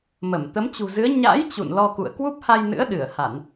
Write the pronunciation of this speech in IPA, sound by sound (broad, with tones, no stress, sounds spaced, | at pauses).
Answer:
m ə˧˩ m t̪ ə˨˦ m t͡ɕ ṳ˨˩ z ɨ˨˦ ə̯ ɲ a̰˧˥ j t͡ɕ ṵ˧˨ n l ɔ˧ k ṵ˧˨ ə̯ k w u˦˥ p̚ h a˧ j n ɨ̰˧˥ ə̯ ɗ ɨ˧˩ ə̯ h a˧˩˨ n